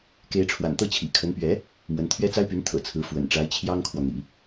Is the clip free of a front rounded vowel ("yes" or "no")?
no